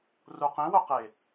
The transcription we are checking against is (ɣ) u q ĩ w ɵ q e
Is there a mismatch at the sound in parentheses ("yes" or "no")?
yes